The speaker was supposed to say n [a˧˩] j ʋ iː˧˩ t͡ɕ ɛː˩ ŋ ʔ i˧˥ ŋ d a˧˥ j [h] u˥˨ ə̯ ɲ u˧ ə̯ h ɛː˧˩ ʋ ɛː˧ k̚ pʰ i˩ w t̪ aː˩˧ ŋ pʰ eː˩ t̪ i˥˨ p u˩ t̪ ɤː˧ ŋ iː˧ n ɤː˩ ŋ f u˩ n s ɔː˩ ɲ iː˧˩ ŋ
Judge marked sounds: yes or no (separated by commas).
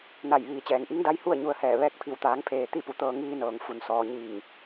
yes, yes